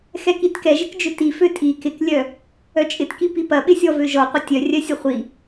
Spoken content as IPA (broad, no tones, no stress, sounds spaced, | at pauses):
x ɛ k i t k ɛ ʒ ɪ k d͡ʒ ʏ t i f ø tʼ i k ɪ k lʲ œ | œ t͡ʃʼ ɪ t k i p i p ɐ ɓ ɪ sʲ ɔ v ø ʒ ɔ qʷ ɪ tʲ œ rʲ œ sʲ ɐ χʷ i